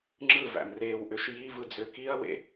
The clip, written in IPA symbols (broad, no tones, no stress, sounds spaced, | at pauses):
ŋ͡ǁ ɯ v æ̰ m r eː w ʔ ø ʃ j i v ɯ d͡z ø k i ɐ̯ w ḛ